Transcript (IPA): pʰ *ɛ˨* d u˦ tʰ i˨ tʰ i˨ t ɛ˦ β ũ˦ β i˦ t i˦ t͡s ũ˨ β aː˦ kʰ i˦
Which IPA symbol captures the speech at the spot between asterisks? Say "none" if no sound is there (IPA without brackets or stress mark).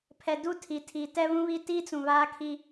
ɛ˨